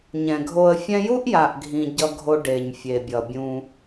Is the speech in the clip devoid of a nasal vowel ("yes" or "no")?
no